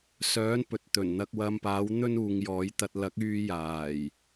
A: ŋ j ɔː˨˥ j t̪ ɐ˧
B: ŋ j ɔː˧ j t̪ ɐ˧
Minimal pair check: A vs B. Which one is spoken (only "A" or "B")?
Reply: A